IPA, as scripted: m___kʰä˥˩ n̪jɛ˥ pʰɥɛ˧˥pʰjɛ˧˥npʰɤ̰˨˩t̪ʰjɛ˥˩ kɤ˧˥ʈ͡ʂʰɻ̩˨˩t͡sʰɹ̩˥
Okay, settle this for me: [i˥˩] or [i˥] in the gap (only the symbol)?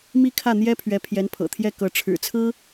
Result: i˥